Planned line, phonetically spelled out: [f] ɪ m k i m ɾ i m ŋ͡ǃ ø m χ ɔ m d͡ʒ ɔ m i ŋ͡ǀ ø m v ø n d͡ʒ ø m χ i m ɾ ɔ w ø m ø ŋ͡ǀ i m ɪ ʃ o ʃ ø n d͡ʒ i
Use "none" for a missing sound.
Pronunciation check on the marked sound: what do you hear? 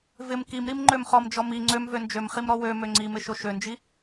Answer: v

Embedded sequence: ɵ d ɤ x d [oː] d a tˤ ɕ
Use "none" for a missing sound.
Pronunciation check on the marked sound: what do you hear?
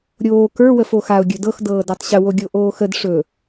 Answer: ɤː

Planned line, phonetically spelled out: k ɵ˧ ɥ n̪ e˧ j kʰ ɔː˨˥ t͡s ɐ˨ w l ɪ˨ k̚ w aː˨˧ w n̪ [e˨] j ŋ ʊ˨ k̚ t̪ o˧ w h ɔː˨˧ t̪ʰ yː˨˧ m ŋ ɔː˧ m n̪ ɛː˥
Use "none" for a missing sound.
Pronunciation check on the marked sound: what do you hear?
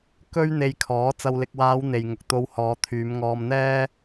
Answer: e˨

